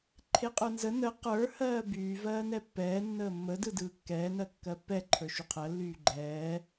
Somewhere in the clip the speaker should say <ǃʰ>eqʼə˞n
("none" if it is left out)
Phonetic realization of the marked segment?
ǃʰ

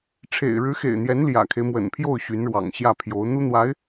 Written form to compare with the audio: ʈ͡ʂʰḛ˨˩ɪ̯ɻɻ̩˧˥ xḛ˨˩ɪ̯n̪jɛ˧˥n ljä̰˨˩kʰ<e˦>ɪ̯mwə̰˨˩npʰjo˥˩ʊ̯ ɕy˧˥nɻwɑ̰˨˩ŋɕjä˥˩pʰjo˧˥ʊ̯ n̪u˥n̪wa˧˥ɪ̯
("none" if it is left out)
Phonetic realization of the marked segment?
e˦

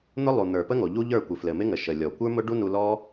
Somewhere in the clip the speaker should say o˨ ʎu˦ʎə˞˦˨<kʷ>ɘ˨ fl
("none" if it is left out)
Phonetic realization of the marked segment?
kʷ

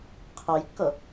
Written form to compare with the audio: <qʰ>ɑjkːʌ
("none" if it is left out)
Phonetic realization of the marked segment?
qʰ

